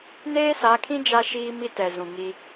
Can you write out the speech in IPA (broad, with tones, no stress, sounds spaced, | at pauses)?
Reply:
n eː˦ s a˨˦ kʰ ĩ˦ d͡ʒ a˦ ʃ iː˦ m i˦ t ɛ˨ z ũ˨ ŋ i˦